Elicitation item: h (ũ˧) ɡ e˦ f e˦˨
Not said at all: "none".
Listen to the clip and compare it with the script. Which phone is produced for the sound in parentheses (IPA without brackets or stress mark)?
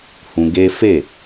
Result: ũ˧